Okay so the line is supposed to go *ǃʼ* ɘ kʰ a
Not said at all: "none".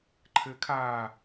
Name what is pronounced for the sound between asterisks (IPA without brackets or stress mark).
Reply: ǃʰ